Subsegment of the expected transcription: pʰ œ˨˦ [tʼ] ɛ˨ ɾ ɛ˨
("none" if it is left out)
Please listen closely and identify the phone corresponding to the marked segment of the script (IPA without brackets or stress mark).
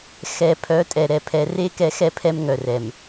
tʼ